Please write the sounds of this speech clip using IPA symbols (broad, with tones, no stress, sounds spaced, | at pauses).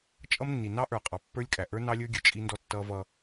t͡ʃʼ ʌ˦ m nː i˨ n ɑ˦ ʔ ə˞˨ qʼ ɑ˨ pː ə˞˦ lʲ kʼ æ˨ ʔ ə˞˦ n ɑ˦ lʲ ə˞˦ ɡʲ ə˨ t͡ʃʼ i˦ n d ɔ˦ tː ʌ˦ v ʌ˦